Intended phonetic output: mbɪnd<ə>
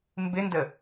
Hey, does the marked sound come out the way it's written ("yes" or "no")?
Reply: yes